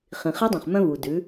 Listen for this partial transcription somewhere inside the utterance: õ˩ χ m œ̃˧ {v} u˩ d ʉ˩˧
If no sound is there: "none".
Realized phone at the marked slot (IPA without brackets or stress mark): v